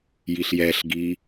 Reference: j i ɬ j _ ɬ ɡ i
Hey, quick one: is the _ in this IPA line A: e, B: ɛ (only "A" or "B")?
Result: B